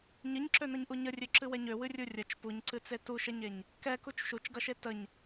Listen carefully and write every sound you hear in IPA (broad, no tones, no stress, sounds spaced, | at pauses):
ɲ ɨ ɲ ǁ ø n ʌ ɲ ʔ u ɲ ə rʲ ø ǁ ɨ w ɛ ɲ ø w ɨ rʲ u rʲ ɐ t͡ʃ p u ɲ ǀ ɨ t͡s e t u ʃ ɛ ɲ e ɲ | k ɛ k u t͡ʃ ʃ u t͡ʃ ɡ ʌ ʃ e t ə ɲ